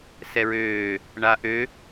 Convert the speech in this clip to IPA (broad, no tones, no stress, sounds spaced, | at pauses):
s ɛ ɹ øː | ɳ a ʔ ø